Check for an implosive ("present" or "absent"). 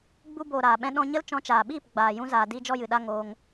present